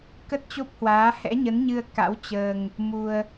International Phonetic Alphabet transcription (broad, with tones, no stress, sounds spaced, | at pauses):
k ə˦˥ t̚ t͡ɕ o˦˥ p̚ h w aː˨˦ h ɛ̰˧˥ ɲ ə˨˦ n ɲ ɨ˧ ə̯ k a̰˧˥ w t͡ɕ əː˧ ŋ | m u˧ ə̯